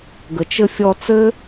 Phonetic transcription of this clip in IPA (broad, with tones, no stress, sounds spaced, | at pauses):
ɡ ə˨ t͡ʃ ɘ˧ fʲ ɔ˧ t͡s ɘ˦